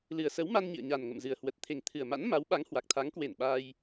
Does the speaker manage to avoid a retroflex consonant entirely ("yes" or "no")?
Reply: yes